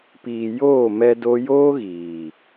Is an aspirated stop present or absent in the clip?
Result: absent